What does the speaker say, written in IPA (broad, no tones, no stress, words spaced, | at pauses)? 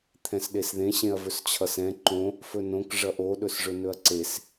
t̪ʰɛ̃sɗesðẽ ɕẽɐ̯vɵst͡ɕʰʌsɛ̃ ǃõ | fɵnõk ʐʌʔo ɗɵsʐɵnɵɐ̯ǀes